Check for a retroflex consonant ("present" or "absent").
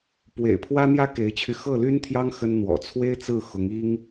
absent